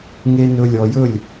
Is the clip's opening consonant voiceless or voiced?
voiced